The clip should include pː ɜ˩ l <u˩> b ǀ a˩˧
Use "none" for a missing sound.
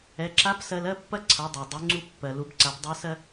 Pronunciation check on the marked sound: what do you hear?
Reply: u˩˧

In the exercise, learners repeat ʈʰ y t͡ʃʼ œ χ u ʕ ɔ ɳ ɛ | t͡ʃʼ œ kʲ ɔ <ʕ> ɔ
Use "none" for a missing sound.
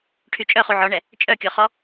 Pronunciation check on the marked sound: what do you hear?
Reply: χ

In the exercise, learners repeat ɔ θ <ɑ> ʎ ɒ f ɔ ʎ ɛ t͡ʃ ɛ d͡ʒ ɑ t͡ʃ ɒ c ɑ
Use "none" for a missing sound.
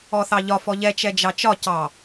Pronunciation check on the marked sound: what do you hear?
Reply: ɑ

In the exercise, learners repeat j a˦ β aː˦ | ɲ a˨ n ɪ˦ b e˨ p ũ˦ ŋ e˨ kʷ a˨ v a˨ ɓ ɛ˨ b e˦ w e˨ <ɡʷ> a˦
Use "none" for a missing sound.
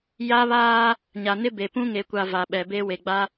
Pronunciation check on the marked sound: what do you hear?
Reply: ɡ͡b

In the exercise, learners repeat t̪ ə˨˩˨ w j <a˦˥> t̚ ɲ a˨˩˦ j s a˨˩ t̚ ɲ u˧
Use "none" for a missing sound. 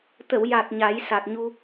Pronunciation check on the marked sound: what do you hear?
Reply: a˨˩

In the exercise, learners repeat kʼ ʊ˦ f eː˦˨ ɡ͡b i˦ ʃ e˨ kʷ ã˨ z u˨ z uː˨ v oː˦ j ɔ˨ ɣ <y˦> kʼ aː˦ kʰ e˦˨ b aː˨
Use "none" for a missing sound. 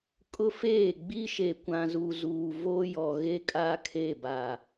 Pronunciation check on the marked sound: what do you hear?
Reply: e˦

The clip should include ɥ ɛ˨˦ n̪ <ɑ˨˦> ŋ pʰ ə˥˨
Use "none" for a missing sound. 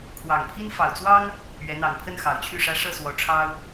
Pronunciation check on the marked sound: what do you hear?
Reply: ɑ˨˩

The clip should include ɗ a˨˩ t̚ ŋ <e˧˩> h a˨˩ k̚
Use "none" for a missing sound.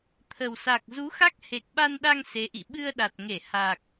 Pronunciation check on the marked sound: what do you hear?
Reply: e˧˩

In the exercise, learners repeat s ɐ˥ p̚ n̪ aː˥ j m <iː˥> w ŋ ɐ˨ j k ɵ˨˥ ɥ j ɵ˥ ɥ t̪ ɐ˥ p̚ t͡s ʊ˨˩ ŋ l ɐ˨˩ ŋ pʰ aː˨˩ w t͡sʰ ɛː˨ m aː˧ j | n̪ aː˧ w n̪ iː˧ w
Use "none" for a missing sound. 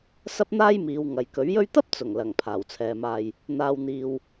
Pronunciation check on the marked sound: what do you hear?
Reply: iː˨˧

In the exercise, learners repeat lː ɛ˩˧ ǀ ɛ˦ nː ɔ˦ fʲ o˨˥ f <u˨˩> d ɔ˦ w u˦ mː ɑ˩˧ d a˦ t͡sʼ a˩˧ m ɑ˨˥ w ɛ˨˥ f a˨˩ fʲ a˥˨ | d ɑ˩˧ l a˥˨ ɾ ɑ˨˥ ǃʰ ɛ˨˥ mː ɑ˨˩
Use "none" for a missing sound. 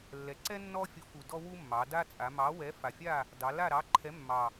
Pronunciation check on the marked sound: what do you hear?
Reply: u˨˩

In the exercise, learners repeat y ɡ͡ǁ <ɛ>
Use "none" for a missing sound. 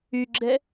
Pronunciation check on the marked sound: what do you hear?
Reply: ɛ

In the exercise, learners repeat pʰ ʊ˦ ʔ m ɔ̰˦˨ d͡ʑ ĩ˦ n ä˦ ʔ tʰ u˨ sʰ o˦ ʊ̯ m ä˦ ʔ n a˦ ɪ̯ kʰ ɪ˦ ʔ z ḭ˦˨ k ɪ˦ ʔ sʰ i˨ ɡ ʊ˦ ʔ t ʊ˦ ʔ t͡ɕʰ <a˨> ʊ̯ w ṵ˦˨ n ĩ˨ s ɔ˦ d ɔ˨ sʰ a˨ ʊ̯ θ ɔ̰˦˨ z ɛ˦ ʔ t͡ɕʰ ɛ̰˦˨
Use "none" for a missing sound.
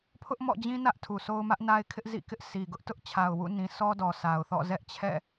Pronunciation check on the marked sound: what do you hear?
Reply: a˨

